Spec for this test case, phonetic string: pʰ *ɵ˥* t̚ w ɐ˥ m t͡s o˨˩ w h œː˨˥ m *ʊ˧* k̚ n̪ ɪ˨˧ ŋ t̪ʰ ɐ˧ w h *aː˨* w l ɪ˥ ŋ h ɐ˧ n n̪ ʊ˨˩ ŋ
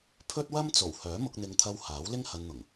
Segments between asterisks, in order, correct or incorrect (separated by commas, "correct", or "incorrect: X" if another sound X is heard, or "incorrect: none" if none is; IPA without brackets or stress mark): correct, correct, incorrect: aː˨˥